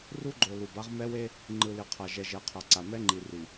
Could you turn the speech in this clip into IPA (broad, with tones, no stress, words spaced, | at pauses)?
ru˦ɡ͡ǃo˨ lu˨ba˦ʁ mɛ˦we˦ | ŋ͡ǃɯ˨ li˨qʰa˨ ʒɛ˨ʒɛ˨qʰa˨ ǀa˨ mɛ˦ŋ͡ǃi˨ri˨